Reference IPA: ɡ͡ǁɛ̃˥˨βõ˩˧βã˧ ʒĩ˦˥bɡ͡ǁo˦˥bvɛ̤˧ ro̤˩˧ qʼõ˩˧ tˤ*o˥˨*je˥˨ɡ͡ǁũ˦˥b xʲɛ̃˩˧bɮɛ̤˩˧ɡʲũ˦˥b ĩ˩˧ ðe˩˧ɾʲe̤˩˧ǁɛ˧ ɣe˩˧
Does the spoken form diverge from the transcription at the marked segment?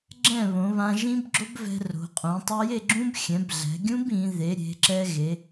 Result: yes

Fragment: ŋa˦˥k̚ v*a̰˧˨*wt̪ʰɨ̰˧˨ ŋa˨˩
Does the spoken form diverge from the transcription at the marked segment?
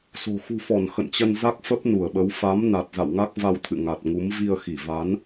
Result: yes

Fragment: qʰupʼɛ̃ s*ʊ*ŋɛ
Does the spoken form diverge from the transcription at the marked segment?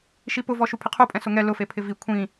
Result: no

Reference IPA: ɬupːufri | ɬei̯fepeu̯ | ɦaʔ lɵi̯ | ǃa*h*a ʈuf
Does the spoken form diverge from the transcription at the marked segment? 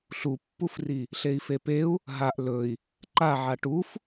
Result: yes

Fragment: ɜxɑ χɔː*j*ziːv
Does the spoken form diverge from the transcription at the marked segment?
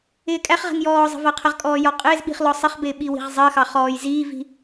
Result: no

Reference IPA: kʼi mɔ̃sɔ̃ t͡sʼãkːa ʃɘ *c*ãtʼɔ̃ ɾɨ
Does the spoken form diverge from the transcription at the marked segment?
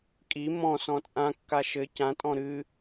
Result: no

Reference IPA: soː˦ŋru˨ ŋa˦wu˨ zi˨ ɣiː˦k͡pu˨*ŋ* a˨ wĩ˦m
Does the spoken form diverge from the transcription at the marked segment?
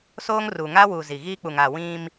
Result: no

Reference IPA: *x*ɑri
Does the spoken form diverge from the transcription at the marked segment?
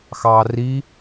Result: no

